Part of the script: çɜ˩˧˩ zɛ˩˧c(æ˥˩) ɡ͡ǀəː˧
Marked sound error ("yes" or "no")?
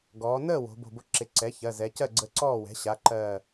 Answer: yes